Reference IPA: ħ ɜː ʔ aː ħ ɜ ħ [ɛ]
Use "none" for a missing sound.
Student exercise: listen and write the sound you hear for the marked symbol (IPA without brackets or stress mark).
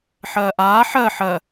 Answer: ɜ